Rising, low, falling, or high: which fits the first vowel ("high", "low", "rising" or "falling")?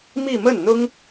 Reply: falling